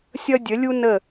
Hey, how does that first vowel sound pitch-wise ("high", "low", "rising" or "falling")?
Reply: high